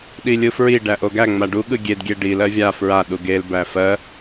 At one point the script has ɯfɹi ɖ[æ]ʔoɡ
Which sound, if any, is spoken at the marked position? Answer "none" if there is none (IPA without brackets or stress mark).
æ